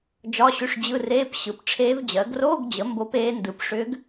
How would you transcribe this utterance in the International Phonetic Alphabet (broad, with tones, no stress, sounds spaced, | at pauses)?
d͡ʒ ɒ˧˥˧ ɕ ʏ˧˥˧ ʂ d͡ʑ ɯ˧˥˧ r eː˧˥˧ p ɕ ɯ˩˥ p ʈ͡ʂʰ eː˧˥ v d͡ʑ ɜ˩˥ ɡ r oː˧˥˧ ɡ d͡ʑ ə˩˥ m b o˧˥ p eː˧˥ n d ɯ˩˥ p ʂ ʏː˧˥ ɡ